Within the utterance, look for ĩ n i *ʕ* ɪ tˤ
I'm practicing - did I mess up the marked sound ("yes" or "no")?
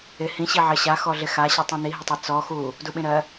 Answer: yes